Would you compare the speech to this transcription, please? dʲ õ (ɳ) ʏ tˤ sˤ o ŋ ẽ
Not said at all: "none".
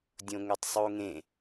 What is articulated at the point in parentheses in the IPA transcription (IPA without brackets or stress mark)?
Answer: ŋ